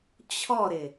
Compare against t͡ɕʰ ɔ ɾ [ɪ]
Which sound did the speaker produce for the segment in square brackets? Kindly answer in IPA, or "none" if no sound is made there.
ɪ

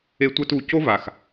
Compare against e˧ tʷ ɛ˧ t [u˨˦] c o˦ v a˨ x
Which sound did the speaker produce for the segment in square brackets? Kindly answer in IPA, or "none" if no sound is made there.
u˨˦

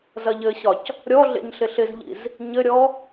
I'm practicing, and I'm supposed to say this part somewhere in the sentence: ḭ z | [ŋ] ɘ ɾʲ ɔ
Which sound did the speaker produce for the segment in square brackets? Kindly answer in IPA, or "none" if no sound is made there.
ɲ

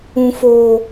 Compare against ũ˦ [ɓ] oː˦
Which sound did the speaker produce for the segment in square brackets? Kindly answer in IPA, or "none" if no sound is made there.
f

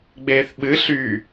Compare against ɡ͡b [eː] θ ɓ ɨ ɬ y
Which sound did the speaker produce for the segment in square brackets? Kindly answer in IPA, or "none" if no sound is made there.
eː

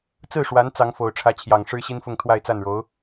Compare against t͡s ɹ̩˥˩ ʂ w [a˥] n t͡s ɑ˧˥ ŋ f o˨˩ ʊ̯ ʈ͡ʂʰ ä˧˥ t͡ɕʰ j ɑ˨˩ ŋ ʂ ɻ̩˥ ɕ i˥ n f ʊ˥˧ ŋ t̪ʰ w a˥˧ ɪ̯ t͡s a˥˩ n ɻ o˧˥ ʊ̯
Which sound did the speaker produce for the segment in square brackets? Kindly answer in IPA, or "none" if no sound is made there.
a˧˥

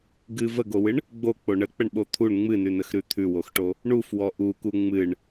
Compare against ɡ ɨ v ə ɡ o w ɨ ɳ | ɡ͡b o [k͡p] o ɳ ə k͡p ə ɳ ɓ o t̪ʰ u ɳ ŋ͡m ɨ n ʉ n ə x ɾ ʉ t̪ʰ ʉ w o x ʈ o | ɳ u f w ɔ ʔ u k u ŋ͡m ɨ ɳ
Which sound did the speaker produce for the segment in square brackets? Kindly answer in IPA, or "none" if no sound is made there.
k͡p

